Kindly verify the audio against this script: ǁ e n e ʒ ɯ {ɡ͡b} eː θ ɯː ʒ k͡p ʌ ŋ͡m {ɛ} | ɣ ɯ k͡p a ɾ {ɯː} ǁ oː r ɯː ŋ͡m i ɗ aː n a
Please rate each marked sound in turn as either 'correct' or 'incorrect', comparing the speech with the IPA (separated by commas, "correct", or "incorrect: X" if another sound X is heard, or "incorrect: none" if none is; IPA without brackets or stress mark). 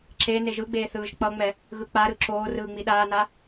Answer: correct, correct, incorrect: ɯ